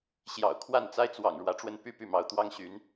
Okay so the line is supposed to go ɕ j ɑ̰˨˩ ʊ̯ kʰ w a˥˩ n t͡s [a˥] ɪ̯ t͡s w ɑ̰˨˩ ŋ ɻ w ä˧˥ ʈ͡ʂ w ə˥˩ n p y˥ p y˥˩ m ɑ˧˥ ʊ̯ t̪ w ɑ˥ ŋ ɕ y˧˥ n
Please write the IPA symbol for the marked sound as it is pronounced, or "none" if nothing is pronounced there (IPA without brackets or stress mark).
a˥